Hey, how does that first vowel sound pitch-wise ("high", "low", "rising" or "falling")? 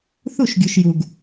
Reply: falling